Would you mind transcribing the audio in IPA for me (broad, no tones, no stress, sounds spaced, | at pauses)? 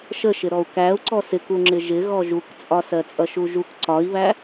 ʃ ə ʃ ɪ ɾ ɔ u̯ k æ u̯ ǀ ɔ s ɪ k u ŋ͡ǁ ɪ ʒ ɪ ɣ ɔ ʒ u k t͡sʼ ɒ s ɜ t͡sʼ ʌ ʃ u ʒ u k ǀ ɒ i̯ β æ